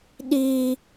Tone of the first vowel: high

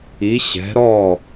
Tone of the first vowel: rising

